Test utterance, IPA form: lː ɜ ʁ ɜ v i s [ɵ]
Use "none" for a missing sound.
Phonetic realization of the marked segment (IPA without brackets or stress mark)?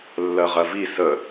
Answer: ə